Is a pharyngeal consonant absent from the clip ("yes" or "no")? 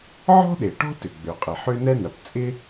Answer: no